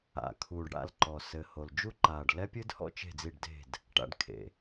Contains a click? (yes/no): yes